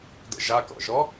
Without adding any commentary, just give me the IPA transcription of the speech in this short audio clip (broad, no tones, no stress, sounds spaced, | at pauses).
d ə̰ ʒ a k ɔ̰ ʒ ɔ